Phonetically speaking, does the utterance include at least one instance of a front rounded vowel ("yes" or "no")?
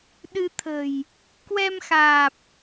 no